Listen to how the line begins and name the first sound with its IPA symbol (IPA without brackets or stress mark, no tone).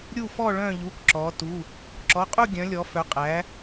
ɾʲ